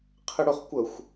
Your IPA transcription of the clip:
qʰɪɽʊχkʷəxʷ

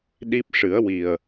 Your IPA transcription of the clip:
ɗi˦˥p̚ ʂɨ˨˩˦ə̯ wi˨˩ə̯

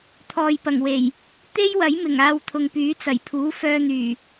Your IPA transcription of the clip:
t̪ʰɔː˨jpɐ˨˩ŋwe˨˩j | t̪e˥jwɐ˨˥jmɪ˨˩ŋ aː˧w t̪ʰʊ˨ŋpyː˨˥ t͡sɐ˨˩jpʰuː˨˥ fœː˧n̪yː˨˩

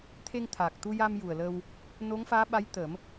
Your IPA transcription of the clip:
t̪ʰe˧ŋt̪ʰa˨˩k̚t̪u˧ja˧m ju˨˩ə̯lə˧w | no˧˥ŋfaː˧˥ɓa˧˥jt̪ə˨˩˦m

